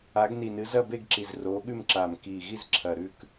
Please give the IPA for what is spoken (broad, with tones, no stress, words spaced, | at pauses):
a˨˦ɡni˨˩nɨ˨˦ zɐ˥˧be˥˧ɡǁi˨˩z roː˨˦ɠʉ˥˧mǁaː˨˩m kiː˨˩ɣi˥˧z ǁʰɐ˨˩ɾʉ˥˧k